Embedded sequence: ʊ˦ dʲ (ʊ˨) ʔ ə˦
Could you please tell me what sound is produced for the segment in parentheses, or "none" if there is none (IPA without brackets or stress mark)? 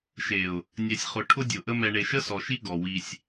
ʊ˨